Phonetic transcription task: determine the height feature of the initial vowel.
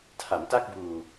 low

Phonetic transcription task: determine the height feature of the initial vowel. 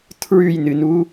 high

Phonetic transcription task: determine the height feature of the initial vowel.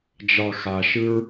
low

